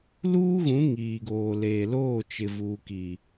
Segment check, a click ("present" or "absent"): absent